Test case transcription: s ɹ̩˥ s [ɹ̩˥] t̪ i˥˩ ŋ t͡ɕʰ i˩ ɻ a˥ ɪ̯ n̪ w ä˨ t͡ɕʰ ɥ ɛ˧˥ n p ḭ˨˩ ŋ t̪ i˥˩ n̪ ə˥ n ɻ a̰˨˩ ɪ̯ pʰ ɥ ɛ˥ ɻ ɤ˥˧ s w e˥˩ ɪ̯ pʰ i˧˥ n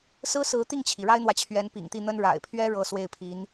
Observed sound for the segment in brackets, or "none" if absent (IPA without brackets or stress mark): ɹ̩˧˥